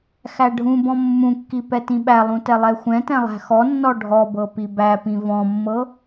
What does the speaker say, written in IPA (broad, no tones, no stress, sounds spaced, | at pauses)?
x æ ɖʱ ũ b ɔ̃ mː ũ kː i p ɛ t ĩ ɓ æ lˠ ũ t ɛ lˠ ɛ xʷ ɛ̃ t ɛ̃ lˠ æ̤ x ɔ nː ɔ ɖʱ ɔ b ɤ p i b æ p ĩ v ɔ̃ mː ɤ